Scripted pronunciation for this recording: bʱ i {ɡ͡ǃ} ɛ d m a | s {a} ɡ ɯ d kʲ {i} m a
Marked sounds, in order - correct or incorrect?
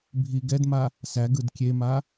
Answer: incorrect, incorrect, incorrect

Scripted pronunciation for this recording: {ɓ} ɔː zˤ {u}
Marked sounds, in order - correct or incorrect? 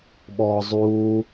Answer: correct, incorrect

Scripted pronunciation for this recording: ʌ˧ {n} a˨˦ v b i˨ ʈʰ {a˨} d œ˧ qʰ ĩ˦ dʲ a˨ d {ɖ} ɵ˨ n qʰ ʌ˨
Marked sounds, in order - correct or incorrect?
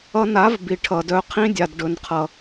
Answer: correct, incorrect, correct

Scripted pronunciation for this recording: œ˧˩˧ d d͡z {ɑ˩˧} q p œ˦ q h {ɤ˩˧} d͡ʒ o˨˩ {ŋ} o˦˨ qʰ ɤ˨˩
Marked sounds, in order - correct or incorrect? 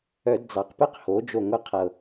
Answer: correct, incorrect, correct

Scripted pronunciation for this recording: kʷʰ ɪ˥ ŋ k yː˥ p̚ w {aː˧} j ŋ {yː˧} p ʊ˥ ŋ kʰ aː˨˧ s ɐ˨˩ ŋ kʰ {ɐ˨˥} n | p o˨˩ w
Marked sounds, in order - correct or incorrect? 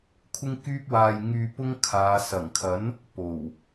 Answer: correct, correct, correct

